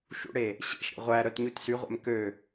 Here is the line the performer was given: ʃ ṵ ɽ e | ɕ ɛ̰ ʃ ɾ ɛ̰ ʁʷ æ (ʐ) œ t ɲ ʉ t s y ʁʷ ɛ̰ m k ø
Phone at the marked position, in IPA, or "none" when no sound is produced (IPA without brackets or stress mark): ɾ